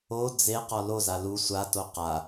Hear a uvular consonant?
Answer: yes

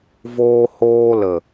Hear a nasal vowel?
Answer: no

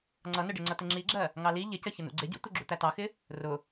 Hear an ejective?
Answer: no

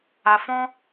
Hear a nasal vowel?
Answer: yes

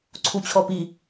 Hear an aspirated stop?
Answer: yes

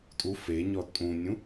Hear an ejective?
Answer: yes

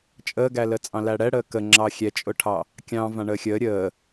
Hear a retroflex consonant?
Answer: yes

